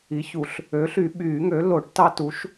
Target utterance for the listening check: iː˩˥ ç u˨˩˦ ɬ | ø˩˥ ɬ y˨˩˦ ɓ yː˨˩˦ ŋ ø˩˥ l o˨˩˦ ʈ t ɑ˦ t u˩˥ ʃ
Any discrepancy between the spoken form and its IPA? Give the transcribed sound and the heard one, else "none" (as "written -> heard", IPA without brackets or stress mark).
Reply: iː˩˥ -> i˩˥